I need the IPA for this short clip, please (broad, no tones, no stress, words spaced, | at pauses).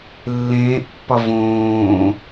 lːẽːʔpːɒ võː